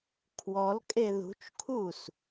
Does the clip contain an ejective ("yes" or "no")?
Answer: yes